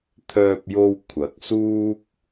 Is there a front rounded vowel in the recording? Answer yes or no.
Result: yes